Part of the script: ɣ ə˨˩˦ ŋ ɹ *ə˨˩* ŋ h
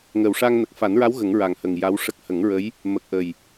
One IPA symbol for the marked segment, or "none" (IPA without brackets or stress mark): a˨˩